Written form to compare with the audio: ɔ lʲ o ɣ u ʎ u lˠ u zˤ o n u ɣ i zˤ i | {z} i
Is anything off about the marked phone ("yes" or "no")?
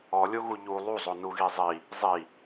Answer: yes